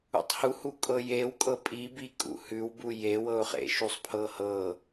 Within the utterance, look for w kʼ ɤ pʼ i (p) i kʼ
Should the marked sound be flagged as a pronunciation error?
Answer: yes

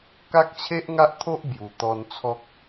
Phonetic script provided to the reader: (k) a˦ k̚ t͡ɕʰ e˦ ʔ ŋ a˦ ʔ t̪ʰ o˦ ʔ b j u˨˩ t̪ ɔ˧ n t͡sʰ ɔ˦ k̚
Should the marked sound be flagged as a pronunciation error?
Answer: no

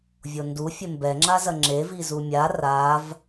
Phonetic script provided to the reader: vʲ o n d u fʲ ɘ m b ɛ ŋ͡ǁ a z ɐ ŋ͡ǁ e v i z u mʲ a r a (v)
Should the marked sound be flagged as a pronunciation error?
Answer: no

